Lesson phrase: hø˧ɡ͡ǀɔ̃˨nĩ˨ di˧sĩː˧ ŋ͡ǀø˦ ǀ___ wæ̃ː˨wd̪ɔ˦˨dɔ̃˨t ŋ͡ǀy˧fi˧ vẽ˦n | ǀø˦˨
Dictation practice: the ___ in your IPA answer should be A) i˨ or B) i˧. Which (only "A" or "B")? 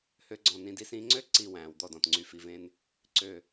A